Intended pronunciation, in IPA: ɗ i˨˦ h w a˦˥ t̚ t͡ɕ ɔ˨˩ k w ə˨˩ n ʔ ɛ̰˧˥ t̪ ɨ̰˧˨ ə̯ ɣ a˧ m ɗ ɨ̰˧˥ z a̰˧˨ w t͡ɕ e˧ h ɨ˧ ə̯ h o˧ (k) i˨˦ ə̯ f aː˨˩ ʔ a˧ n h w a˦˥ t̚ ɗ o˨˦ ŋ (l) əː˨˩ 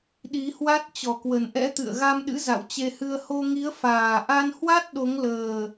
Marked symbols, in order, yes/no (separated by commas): no, yes